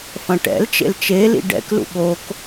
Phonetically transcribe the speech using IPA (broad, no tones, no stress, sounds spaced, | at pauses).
f ɐ̃ ʈ ɛ̰ l t͡ʃ ḛ l t͡ʃ e l ḭ ɖ ɛ̰ k l ṵ ɠ o k